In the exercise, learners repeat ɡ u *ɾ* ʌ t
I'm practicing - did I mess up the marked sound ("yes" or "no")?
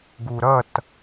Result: no